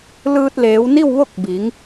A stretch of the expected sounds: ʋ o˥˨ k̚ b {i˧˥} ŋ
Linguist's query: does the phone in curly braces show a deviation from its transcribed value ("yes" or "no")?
yes